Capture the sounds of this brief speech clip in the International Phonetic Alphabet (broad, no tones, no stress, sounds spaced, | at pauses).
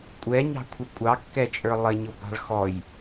kʷʼ ɛ ɲ ɑ̤ kʷʰ ə kʷʼ ɑ kː ɛ t͡ʃʼ ə˞ lˠ ɪ ɲ ʊ b ɑ̤ ɭ x ɔ j